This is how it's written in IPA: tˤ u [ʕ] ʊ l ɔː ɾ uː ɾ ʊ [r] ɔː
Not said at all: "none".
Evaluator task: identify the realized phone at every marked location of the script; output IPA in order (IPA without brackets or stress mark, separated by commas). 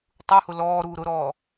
h, ɾ